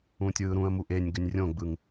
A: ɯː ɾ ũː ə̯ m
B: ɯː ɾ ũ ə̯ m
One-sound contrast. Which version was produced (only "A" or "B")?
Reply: B